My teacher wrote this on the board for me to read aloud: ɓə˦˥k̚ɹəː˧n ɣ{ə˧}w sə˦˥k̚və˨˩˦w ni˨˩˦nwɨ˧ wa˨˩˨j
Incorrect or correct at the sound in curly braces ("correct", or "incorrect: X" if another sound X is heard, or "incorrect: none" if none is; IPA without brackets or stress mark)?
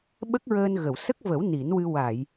incorrect: ə˨˩˨